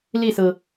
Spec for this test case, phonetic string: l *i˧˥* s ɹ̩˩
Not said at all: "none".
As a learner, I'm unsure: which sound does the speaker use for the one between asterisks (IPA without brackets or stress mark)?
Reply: i˥˩